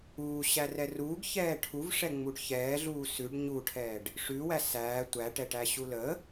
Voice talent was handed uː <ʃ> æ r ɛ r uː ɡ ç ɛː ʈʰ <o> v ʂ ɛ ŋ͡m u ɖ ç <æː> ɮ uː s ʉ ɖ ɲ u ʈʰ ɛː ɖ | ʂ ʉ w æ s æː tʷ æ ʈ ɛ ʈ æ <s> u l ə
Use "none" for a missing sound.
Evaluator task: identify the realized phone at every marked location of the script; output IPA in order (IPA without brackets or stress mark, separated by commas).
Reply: ɕ, u, ɛː, ɕ